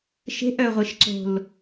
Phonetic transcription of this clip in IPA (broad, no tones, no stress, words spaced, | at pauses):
ʃe̤ʔœʁʷeʃǀo̤l